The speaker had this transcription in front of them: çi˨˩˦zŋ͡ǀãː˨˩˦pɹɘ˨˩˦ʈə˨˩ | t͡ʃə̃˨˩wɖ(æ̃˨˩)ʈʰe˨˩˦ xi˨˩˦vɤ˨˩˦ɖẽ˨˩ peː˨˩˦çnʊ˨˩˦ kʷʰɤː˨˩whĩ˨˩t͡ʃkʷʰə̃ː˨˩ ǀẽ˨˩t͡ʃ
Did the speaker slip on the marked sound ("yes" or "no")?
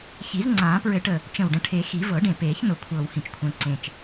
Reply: yes